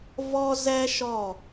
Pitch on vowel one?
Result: high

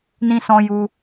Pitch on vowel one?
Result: high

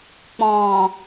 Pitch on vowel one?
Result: low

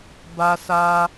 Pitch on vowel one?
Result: high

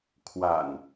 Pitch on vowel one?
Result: low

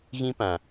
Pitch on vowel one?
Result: high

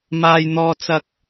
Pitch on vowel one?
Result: high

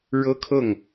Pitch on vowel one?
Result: high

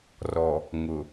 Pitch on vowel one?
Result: low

